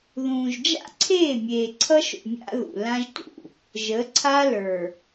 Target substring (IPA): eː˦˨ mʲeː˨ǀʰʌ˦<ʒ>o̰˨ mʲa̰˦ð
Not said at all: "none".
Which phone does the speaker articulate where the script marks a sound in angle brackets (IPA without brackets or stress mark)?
ʃ